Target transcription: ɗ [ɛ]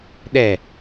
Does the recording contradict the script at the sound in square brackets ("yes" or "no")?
no